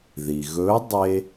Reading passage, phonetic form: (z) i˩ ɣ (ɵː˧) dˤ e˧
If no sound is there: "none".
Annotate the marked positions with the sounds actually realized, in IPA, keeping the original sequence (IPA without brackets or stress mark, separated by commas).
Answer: ð, ɵː˧˥